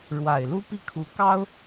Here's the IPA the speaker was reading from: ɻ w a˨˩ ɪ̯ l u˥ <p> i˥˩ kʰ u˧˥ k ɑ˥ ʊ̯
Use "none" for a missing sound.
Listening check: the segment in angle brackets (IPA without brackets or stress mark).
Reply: p